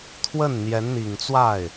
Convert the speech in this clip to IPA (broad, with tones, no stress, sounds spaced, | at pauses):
t̪ʰ w ə˥˩ n n̪ j ɛ˧˥ n n̪ i˨˩ ŋ t͡s w a˥˩ ɪ̯